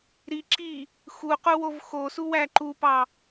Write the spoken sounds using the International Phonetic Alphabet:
ɾ i ǁ i | x u q u w o v x o s u w æ ǃ u p ɑ

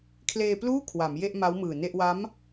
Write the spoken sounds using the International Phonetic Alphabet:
kʰ l eː˧ p l uː˥˩ kʰ w a˩˦ m j e˥˩ ʔ m a˦˥ w m ɯː˨˩ n e˥˩ ʔ w a˦˥ m

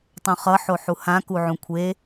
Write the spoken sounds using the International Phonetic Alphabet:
tˤ õ χ ʌ ħ o ħ u h ã k u ʕ ũ kʷʰ e

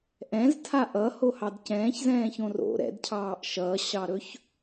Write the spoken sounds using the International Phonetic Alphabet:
ʔ ɛ̃ z tʰ a ʔ ʌ h o h ɑ d c ɛ̃ː ç z ɛ̃ː ç õ r o̰ ɾ ɛ̰ d cʰ ɑː ʔ ʃ ʌ ɕ ɑ ɾ ɵ ç

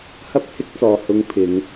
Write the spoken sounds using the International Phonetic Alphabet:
h ɐ˥ p̚ h ɪ˥ k̚ t͡s ɔː˧ h ʊ˧ ŋ pʰ ɪ˨˧ ŋ

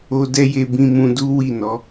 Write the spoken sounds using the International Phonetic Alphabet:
o˧ d ɛ˦ j e˧ b ĩ˧ m ũ˧ d u˦ w i˦˨ n ɔ˨˦

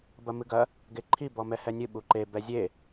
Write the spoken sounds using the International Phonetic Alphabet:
b ɐ m ɨ ɡ ɐ | ɡ e ǃʰ i b ɔ m ɛ h ɛ nʲ ɨ ɓ u ǃ e b ɛ zʲ e

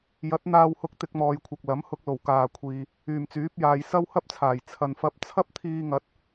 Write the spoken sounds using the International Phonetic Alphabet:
j ɐ˨˥ t̚ n̪ aː˧ w h ʊ˧ k̚ t̪ ɪ˧ k̚ m ɔː˨ j kʷʰ ɐ˨ k̚ l ɐ˨˥ m h ʊ˧ k̚ l o˨˩ w k aː˨ kʷʰ iː˨ | yː˨˩ m t͡s yː˨˥ p̚ j aː˨ j s ɐ˥ w h ɐ˥ p̚ t͡sʰ aː˨˩ j t͡sʰ ɐ˨ n f ɐ˧ p̚ t͡sʰ ɐ˥ p̚ t̪ʰ iː˧ ŋ ɐ˨˥ t̚

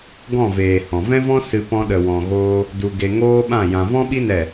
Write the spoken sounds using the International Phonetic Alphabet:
ɡ ɔ̃˦˨ v eː˨ h ɔ̃˨ v ɛ̃˦ v ɔ̃˦ s ɨ˧ p ɔ̃˧ ɗ ə˨ w ɔ̃˨ ɣ oː˧ | d u˧ ɡ e˧ ŋ oː˦ ɓ ã˦˨ j ã˨ v ɔ̃˦ ɓ i˦ n ɛ˦˨

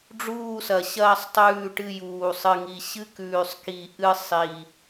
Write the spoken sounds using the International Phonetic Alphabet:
ɖ͡ʐ uː˦˨ s ɐ˨˩ ɕ ɐː˦˨ sˤ tˤ ʉː˦˨ ʈ ɨ˦˨ j uː˨˩ sˤ ɨ˨˩ ŋ i˨˩ ɕ ɨ˦˨ k ʉː˨˩ sˤ k i˨˩ ʔ ɨ˦˨ sˤ i˨˩

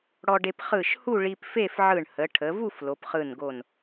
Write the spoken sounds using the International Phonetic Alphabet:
ɽ ɔ˧ ɖ e˧ p χ ɯ˧˩ ʃ h u˥˧ ɭ i˧ p f e˥˧ f ʕ ɯ˧˩ ɳ h ə˩˧ ʈʰ ə˩˧ v u˥˧ f l o˩˧ p χ ɯ˧˩ n ɡ o˧˩ n

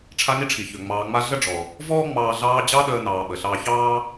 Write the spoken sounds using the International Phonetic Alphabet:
ʈ͡ʂʰ a˦ ŋ i˥ ʈ͡ʂʰ i˩ ç ø˩ ŋ͡m ɑː˨ ŋ͡m a˦ ɮ ə˥ ɖ͡ʐ ɔ˩ | v ɔː˥ ŋ͡m ɑː˨ ɮ ɑː˦ d͡ʑ ɑ˥ ɗ əː˦ n ɑː˨ ɓ ə˩ ɬ ɑː˦ ç ɑː˥

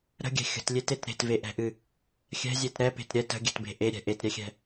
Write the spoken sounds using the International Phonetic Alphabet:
ɾ ə̤ ɡʲ ɛ̤ xʲ ə̤ t lʲ e t e t ɾ e̤ t v e ʔ ɛ̤ ʔ ɨ | xʲ ɛ̤ zʲ e t ɾ ɛ p e̤ t ɾʲ ɛ t ə̤ ɡʲ ɛ̤ t b e̤ ʔ e ɾʲ ɛ̤ ʔ e t ɾʲ ɛ xʲ ɛ̤

